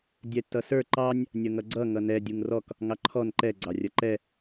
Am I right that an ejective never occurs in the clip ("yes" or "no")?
yes